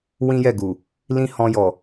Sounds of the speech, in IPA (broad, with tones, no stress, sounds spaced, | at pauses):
w ĩ˦ j ɛ˦˨ ɡ u˨ | l ĩ˦ h ɔ̃˧ j ɔ˨